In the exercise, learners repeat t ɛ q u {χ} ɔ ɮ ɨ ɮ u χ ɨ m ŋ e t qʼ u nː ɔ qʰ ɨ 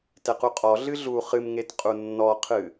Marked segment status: incorrect: qʼ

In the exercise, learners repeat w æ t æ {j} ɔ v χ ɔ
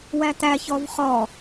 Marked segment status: incorrect: ç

